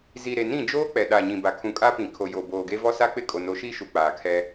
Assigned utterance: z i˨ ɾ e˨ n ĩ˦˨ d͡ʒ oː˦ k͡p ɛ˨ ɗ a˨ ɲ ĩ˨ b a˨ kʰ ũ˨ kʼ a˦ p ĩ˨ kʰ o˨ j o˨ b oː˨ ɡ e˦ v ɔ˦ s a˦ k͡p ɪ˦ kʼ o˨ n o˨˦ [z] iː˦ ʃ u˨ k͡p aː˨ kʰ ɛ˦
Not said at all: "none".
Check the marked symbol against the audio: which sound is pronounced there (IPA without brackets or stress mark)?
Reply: ʃ